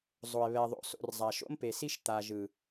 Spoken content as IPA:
zˤ o˨ e̯ β ɛ˨ ðˤ o̰˨ s o̰˨ r zˤ a˨ ʃ o̰˦ m p e˨ s i˦ ʃ t̪ a˨ ʒ ɯ˨

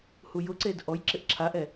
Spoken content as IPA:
h u j ʊ ǀ e d ʔ ɔ j ǁ ɪ ʔ ǁʰ a ʔ ɛ

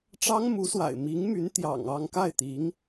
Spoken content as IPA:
ʈ͡ʂ ɑ˥ ŋ m u˧˥ s w a̰˨˩ ɪ̯ m i˧˥ ŋ m y˧˥ n t̪ j ɑ̰˨˩ ŋ ɑ˥˧ ŋ k a˥˩ ɪ̯ t̪ i˧˥ ŋ

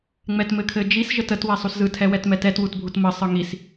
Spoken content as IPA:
ŋ͡m ɛ t m ɘ kʰ ɘ d͡ʒ i s ʒ ə t ə t w ɛ sˤ u s z ɯ tʰ ɛ w ɛ t m ɛ t ɛ t w u t bʱ u t m ə sˤ ɯ ŋ i s

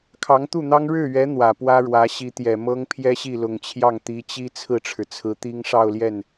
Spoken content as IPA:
kʰ ɑ˧˥ ŋ t̪ u˥˩ n̪ ɑ˥ ŋ ɻ ɻ̩˥˩ ɥ ɛ˧˥ n̪ w ä˨˩ p w ä˥ ɻ w ä˧˥ ɕ i˧˥ t̪ j ɛ˨˩ m ɤ˥ ŋ pʰ j ɛ˥ ɕ i˥˩ l ʊ˨˩ ŋ t͡ɕʰ j ɑ˥˩ ŋ t̪ i˧˥ t͡ɕ i˥ t͡sʰ ɹ̩˥˩ ʈ͡ʂʰ ɻ̩˩ t͡sʰ ɹ̩˧˥ t̪ i˥ ŋ ʂ ɑ˥˧ ʊ̯ l j ɛ˥˩ n

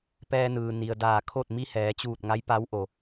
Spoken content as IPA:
p ɛː˧ n ɯː˩ n i˩ ə̯ d aː˧˩ kʰ o˥˨ t̚ m i˧ h ɛː˩˧ t͡ɕ uː˧˩ t̚ ŋ a˧˥ j p a˧˥ w ʔ o˩

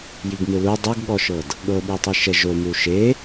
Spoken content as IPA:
j i ɡ m ɯ l u dˤ u ɡ ɠ ɔ ʃ ɤ d | ɠ ɤ ɓ i tˤ i ʃ ɛ ʒ o m u ʃ e

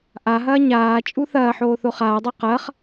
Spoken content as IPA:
ʔ a ɦ ɐː ɲ aː t͡ʃʼ u θ ɐː ħ oː θ o χ aː dˤ o q ɐː χ

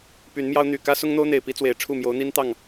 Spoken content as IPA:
p y˨˦ n m j ɑ˦ ʊ̯ n̪ y˨˩ k ä˦ s ʊ˦ ŋ n̪ o˦ ʊ̯ n̪ e˨˩ ɪ̯ p i˦ t͡s w e˨˩ ɪ̯ ʈ͡ʂʰ u˥˨ m j o˨˦ ʊ̯ n̪ i˦ n t̪ ɑ˥˨ ŋ

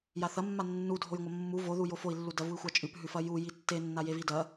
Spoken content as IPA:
j a θ ɐ mː a nː u dʱ o j ŋʷ ɐ mː u v o ð u j o f o i̯ lː u d ɐ v u i̯ xʷ a t͡ʃʼ ʉ p ɦ ʉ f ɐ j u j i tː e nː a j e v i d ɐ

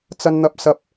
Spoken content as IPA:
t͡s ɐ˥ n n̪ ɐ˥ p̚ s ɐ˥ p̚

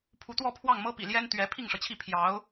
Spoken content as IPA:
pʰ u˧˥ t̪ w ɔ˥˧ pʰ w ɑ˥˩ ŋ m ɤ˥ p ḭ˨˩ l j ɛ˥ n t̪ ɥ ɛ˧˥ pʰ i˥˩ ŋ ʂ ɤ˩ t͡ɕʰ i˥˩ pʰ j ɑ˧˥ ʊ̯

